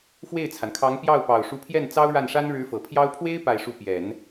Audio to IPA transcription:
fwe˥˩ɪ̯t͡sʰa˩nkʰɑ˧˥ŋ pjɑ˥˩ʊ̯pɑ˨˩ʊ̯ ʂu˧˥pʰjɛ˥˩n t͡sɑ˥ʊ̯ɻa˥˩nʂa˥n ɻɻ̩˧˥fɤ˨˩pʰjɑ˥ʊ̯ pʰwe˥ɪ̯ pa˥˧ɪ̯ʂu˥˩ pjɛ˨˩˦n

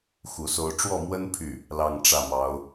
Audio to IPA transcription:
xu˧˥so˥ʊ̯ ʈ͡ʂwɔ˥˩mwə˥n pʰy˥˩ | lɑ˥˧ŋʈ͡ʂä˥˩mɑ˧˥ʊ̯

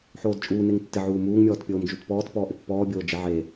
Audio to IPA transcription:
ħoːdt͡ʃʼuː neŋtːɪ ʕuːmuːŋ mʲɔːtpʲoːmd͡ʒutpɔːt pɔːʔɪpːɔː bʲoːd͡ʒɪ ʕe

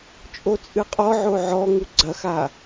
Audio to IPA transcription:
t͡ʃʼot͡sʼɨqʼɔʕo ʕɔŋu ɡ͡ǀɐxa

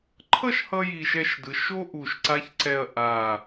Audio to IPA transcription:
ǃʰʌ˥˧ʃ hʌ˧ ji˧˩ʃɛ˥˧ʃdɯ˩˧ ʃo˥ ʔu˧˩ʃǀa˥çǀɛ˥˧ɐ̯ ʔa˧˩

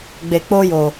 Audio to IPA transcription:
ɡ͡be˧k͡po˦jo˧

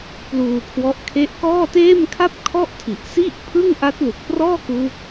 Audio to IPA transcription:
pluː˧kʰwɔ˦˥ʔkʰe˥˩ʔ kɔː˥˩teː˥˩m kʰa˥˩p̚kʰɔ˥˩ʔtʰi˨˩ʔ si˥˩ʔpʰɯ˥˩ŋ ʔa˦˥t̚lu˨˩k̚prɔː˥˩kuː˦˥k̚

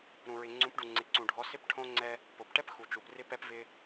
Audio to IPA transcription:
ɾũ˨ɹɪ˨ŋ͡ǀũ˨˦pɖu˨ ŋ͡ǀɪ˨ǀũ˨ɖʱɔ˨˦ sɪ˦pʈʰõ˦ŋ͡ǀɛ˦ | po˨pʈɛ˦p xu˨t͡ʃu˨prɪ˦ pɛ˦p vɪ˦

